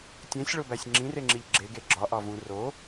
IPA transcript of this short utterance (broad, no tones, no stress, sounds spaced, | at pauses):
tʲ ẽ sʲ ɭ o b æ sʲ ŋ͡ǁ ĩ r e ŋ͡ǁ i ʎ ɡ͡ǁ e ɡ e ɡ͡ǁ ɒ ʔ ɒ v ũ r o